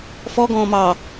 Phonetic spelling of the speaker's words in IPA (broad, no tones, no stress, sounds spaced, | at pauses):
f ɔ ɡ ɔ̃ː m ɑ